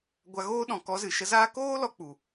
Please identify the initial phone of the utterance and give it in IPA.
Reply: ɡʷ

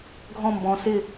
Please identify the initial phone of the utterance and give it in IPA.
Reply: ɡʱ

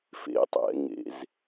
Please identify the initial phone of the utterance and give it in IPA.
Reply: f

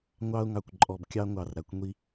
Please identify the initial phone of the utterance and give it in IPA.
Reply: ŋʷ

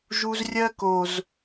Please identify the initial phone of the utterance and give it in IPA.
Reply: ʒ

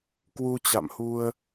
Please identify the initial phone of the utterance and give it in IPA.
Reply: k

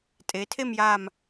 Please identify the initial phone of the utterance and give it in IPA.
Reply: tʼ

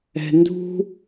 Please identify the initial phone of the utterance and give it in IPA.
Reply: ɛ̤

